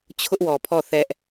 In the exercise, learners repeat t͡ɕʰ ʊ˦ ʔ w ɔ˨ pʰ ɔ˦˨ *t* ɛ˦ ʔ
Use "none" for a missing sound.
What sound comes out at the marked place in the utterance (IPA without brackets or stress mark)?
θ